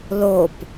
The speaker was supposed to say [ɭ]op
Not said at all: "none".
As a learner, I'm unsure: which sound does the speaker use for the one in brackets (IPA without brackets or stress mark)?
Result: l